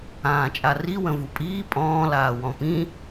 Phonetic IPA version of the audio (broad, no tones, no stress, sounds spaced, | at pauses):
ãː t͡ʃʼ a r i w ə̃ v u pʼ iː pʼ ɔ̃ː l aː w ɔ̃ p ĩ